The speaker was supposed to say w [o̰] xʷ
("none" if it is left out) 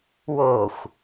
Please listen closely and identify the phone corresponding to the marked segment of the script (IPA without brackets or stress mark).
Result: o